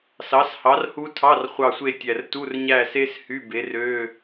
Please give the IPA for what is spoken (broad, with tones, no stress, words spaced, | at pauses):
sɑ˨˥shɑ˨˥rhu˦˥tʰɑ˧˥˧r χʷɑ˦˨sʷe˦˨tʲæ˨˩rtu˧˥˧r ɲæ˦˨se˦˥s hy˧˥˧be˨˥ rø˧˥˧